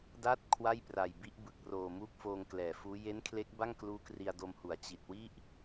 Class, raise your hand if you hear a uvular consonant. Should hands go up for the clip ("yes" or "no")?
no